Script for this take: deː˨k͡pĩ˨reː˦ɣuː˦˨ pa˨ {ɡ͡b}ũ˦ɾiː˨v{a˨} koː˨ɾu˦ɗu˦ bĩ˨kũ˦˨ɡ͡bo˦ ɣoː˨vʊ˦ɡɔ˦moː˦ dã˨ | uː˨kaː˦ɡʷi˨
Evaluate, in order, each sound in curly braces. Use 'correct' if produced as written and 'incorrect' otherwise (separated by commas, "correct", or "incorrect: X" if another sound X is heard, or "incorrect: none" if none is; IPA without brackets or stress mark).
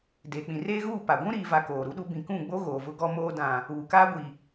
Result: incorrect: ɡʷ, correct